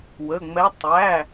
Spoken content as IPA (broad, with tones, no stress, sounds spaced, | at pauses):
w ə˩˧˩ ŋ͡m ɛ˧˥ tˤ æ˩˧˩